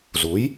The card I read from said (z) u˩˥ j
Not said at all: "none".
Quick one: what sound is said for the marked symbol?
z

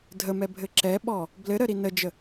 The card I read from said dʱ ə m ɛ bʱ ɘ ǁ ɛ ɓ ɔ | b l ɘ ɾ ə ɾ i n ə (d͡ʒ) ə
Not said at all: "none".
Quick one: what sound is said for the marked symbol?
d͡ʒ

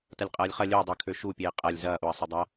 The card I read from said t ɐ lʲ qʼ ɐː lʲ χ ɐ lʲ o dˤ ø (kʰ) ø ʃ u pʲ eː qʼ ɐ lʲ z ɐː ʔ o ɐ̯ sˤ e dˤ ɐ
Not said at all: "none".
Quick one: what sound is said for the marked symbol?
kʰ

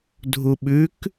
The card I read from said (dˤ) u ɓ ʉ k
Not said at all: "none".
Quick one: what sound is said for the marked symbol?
dʱ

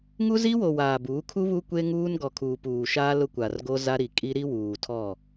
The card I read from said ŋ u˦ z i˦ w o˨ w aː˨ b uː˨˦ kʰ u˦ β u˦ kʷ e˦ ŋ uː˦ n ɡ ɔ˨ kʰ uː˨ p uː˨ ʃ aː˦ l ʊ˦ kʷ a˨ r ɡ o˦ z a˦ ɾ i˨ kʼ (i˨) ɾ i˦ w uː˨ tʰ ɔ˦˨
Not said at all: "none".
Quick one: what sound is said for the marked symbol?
i˦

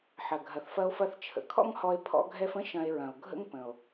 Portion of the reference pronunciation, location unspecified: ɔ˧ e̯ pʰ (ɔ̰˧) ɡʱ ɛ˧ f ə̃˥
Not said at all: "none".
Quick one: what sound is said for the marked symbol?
ɔ̰˧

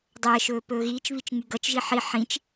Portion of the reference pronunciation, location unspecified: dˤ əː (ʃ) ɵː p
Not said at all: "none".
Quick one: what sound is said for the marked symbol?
ʃ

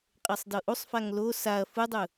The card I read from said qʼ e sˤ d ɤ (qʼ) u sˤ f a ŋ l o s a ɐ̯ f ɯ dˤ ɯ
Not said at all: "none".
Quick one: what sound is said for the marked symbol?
ʔ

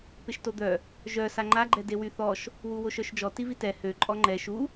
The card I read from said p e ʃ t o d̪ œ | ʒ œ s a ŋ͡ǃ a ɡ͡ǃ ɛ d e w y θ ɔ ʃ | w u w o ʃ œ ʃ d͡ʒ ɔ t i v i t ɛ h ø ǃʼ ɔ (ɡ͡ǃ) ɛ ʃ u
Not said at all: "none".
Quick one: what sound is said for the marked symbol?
ŋ͡ǃ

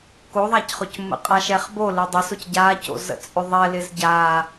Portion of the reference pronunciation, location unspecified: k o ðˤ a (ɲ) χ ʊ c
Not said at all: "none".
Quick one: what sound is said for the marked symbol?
c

